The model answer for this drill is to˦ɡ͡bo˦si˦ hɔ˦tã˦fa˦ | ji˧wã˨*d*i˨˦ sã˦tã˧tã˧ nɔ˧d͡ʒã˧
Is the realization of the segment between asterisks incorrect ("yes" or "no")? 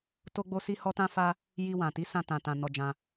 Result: yes